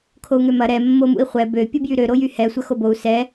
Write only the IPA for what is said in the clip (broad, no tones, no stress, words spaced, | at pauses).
kʰou̯ŋømɐ ɾɛ mːomṵi̯χʷɛ bø pʲubjyɾø ɾojyhɛ sʷɐxobou̯ sɛ